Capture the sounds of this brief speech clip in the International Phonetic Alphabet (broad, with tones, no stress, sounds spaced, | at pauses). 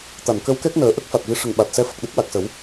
t̪ a˨˩˨ n k ə˧˥ w k ɛ˦˥ k̚ n əː˨˩˦ ʔ ə˦˥ k̚ f a˨˩ t̚ v i˧˥ ʂ ə˨˩ ŋ ɓ a˨˩ t̚ s ɛ˧ f ə˨˩ k̚ ɗ ə˦˥ k̚ w a˨˩ k̚ s ə˨˩˦ w